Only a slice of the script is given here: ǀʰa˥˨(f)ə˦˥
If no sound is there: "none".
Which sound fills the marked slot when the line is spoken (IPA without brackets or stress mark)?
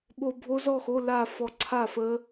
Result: f